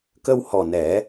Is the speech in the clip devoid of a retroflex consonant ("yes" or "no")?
yes